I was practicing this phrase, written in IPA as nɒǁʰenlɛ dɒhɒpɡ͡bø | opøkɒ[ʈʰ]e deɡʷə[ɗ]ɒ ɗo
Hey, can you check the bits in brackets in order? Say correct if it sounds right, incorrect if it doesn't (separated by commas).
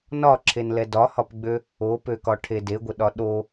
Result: correct, correct